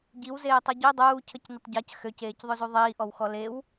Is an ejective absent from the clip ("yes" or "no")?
yes